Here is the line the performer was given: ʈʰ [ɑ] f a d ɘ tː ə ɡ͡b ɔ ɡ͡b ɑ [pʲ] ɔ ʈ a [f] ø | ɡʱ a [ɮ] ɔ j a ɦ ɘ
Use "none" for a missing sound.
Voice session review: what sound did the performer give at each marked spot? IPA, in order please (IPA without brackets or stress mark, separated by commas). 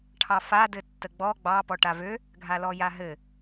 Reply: ɑ, p, v, l